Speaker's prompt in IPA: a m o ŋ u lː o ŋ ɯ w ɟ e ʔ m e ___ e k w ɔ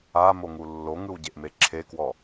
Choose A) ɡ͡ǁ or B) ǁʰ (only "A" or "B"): B